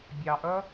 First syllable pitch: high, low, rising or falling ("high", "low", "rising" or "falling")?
low